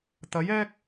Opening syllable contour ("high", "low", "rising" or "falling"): rising